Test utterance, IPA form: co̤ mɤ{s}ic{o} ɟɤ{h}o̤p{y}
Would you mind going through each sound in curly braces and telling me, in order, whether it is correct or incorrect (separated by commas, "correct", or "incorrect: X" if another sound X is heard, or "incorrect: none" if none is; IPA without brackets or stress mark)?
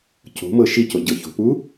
incorrect: ʃ, correct, incorrect: ç, incorrect: u